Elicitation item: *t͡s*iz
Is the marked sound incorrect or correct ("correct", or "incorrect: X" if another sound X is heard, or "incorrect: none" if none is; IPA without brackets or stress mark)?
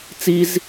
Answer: correct